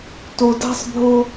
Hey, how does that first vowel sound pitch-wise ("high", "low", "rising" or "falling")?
low